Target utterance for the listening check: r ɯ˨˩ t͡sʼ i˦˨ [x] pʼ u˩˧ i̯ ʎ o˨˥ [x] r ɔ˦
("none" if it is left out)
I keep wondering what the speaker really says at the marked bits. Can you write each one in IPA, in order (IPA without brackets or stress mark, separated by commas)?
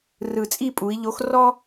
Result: none, x